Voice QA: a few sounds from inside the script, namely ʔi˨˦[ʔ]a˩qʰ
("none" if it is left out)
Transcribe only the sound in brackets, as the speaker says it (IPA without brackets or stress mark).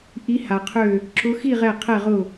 h